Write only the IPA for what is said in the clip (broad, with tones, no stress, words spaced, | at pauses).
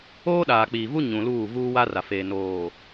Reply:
oː˦ɗaː˨k͡piː˨vu˦ ɲũ˨luː˦˨ vuː˦wa˦ra˨feː˨ noː˨